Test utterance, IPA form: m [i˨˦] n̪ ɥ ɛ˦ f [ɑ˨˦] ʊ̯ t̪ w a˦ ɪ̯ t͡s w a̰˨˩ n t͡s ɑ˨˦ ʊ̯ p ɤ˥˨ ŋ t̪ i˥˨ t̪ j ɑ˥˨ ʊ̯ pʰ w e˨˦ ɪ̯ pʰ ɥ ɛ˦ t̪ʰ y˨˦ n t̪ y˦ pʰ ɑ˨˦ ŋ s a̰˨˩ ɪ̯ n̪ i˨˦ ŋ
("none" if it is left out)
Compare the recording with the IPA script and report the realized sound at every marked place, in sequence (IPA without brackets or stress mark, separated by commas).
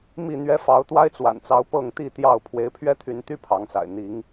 i˥˨, ɑ˨˦